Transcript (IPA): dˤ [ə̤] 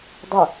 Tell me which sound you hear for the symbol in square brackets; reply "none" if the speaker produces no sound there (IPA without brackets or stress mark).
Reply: ə